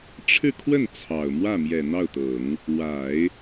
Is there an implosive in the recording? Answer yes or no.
no